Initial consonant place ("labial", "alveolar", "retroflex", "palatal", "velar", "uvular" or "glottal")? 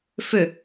labial